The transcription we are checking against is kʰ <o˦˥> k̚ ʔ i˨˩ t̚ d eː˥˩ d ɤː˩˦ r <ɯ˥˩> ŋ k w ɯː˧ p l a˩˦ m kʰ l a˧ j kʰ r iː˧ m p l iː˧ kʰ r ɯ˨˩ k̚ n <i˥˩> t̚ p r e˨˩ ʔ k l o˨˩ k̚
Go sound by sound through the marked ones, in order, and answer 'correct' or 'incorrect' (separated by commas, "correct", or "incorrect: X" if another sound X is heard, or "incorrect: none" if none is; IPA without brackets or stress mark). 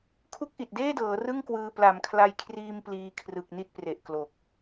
incorrect: u˦˥, correct, correct